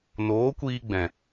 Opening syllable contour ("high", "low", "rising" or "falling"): rising